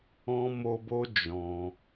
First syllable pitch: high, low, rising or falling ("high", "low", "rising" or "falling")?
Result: high